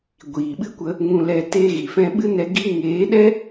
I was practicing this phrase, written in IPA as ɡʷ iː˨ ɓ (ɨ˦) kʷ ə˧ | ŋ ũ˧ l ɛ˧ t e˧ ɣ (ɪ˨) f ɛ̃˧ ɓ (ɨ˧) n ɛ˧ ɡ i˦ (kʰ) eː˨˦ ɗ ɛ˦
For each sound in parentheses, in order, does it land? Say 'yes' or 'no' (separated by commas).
yes, no, no, no